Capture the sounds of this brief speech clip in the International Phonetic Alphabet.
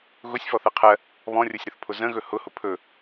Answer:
ɣ ʊ sʲ f ɔ θ ɛ qʰ ɜ | β ɔ̃ rʲ o sʲ ɾ ʊ θ pʰ ʊ z ə̃ ɣ ɵ h ʊ h ʊ pʰ ɵ

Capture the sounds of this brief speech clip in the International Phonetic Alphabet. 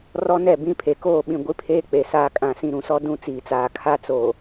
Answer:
r ɔ˦ n ɛ˦˨ b ĩ˦ pʰ e˨ k oː˦˨ ɓ ĩ˨ ɡʷ i˦ pʰ eː˦ k͡p e˨ s aː˨ kʼ ã˨ s ĩ˨ ɾ ũ˨ s ɔ˦ d ũ˦ t͡s iː˨ t͡s aː˨ kʰ a˦ t͡s oː˨

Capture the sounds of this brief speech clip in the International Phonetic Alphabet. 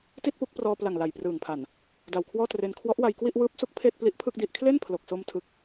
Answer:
t i˥˩ t̚ p u˥˩ k̚ p r ɔː˧ p l a˨˩ ŋ l a˨˩ j p r ɯː˨˩ ŋ pʰ a˨˩ n | d a˨˩ w kʰ w ɔː˥˩ t r e˧ n kʰ w ɔ˦˥ ʔ w a˧ j k w i˥˩ ʔ w ɯː˦˥ p̚ s u˦˥ k̚ pʰ eː˥˩ t̚ p l i˦˥ ʔ pʰ ɯ˥˩ k̚ d i˥˩ ʔ kʰ l e˥˩ n pʰ l o˨˩ k̚ s o˧ m tʰ ɯ˦˥ k̚

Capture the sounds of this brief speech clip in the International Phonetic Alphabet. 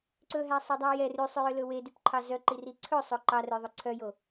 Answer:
ǀ ɵ ɦ æ sˤ e dˤ ɑ j ɛ r y sˤ ø j ø l ɵ w e d y p ǃʰ ɑ z œ ǃ i r i ǀʰ ɵ sˤ o ǃ ɑ r ɵ j ðˤ ɵ ǀʰ œ j o

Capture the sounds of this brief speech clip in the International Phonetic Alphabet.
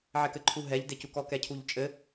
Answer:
ʕ ɛ k ɘ ǃʰ u ɦ ɛ ʎ d e c u k ɔ k ɛ cʰ u ʎ t͡ʃʼ ɘ

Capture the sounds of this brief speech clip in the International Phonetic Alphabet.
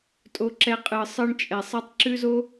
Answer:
tʼ o˧ ǁ ɛ˧ qʼ ɯ˨ sˤ ɯ˧ ɳ t͡ʃʼ ɛ˨ sˤ ɛ˧ tˤ ǁ ʉ˦ z o˦

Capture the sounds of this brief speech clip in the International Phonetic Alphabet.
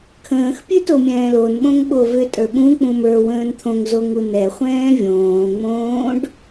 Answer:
kʰ ə̃ː x pʲ ʉ t o mʲ ɛ̃ː l o n ɓ õ ŋ ɓ o v ʏ tʼ ə˞ ɓ ũ k͡p ũ m ə˞ w ə̃ː n t̪ʰ õ ŋ z o ŋ u n ɛ χʷ ɛ̃ː vʲ õː ŋ͡m õː ɖ

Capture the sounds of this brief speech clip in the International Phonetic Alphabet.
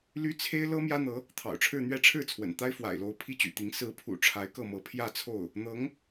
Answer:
l y˥ t͡sʰ e˥ ɪ̯ l ɤ˥ m j ä˥ n̪ ɤ˧˥ | t̪ʰ ɑ̰˨˩ ʊ̯ ʈ͡ʂʰ ɻ̩˥˧ n̪ ɥ ɛ˥˧ ʈ͡ʂʰ ɻ̩˥˩ t͡sʰ w ə̰˨˩ n t̪ a˥ ɪ̯ f w a̰˨˩ ɪ̯ l o˧˥ ʊ̯ pʰ i˥ t͡ɕ y̰˨˩ t̪ i˧˥ ŋ s ɹ̩˧˥ pʰ ṵ˨˩ ʈ͡ʂʰ a˧˥ ɪ̯ k ɤ˥˩ m ɤ˧˥ pʰ j ä˥˧ t͡sʰ o˥˩ ʊ̯ | n̪ ɤ˧˥ ŋ

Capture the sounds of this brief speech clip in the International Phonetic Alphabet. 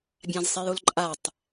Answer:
bʲ ã z sˤ e j o l ǃʼ a tˤ

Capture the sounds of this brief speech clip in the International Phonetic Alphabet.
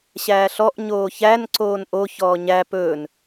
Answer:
ɕ æː ɬ ɔ ʔ ɲ oː ç æ n ǀ oː n ʔ o ç ɔː ɲ æ p ɵː n

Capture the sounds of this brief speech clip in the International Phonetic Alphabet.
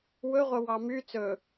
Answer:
w ɵ ʁʷ œ w ɑ m y t͡s ɵ

